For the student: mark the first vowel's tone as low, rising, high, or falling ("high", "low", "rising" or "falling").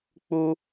high